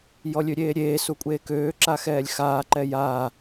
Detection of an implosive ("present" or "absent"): absent